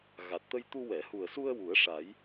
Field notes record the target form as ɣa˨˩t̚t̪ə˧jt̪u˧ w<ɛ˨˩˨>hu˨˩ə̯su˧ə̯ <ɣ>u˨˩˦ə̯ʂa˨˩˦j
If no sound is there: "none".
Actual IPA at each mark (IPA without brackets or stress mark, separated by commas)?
ɛ˨˩˨, w